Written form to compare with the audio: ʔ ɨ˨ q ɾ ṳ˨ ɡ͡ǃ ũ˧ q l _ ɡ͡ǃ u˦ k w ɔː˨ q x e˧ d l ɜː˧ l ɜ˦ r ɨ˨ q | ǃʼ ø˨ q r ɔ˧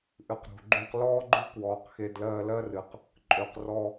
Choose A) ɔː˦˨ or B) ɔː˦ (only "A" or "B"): B